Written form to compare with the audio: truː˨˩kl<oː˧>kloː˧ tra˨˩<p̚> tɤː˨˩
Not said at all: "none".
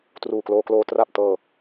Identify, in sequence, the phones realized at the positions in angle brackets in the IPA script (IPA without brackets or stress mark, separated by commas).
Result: oː˧, p̚